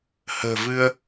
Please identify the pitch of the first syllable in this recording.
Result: low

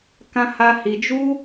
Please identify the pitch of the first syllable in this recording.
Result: high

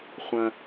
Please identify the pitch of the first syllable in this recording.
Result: low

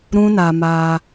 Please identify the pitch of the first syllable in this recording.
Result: high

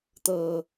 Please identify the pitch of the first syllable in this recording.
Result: low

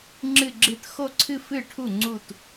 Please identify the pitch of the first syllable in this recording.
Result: falling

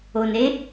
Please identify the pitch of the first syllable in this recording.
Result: low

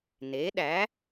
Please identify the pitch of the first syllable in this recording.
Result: rising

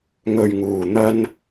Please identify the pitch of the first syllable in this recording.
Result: low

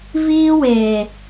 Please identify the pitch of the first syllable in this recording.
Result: high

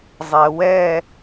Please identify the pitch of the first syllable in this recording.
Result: low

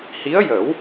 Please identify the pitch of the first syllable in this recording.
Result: rising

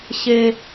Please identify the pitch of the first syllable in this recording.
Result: high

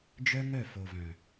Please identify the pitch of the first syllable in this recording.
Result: high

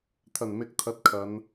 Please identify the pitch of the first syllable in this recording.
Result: low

